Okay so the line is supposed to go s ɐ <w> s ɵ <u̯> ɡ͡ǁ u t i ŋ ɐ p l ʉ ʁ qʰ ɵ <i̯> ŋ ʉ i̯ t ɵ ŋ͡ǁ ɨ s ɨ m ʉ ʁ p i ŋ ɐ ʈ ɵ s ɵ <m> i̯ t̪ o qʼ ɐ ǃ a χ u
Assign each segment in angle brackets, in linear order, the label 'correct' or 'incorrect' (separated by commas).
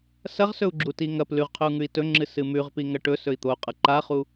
incorrect, correct, incorrect, incorrect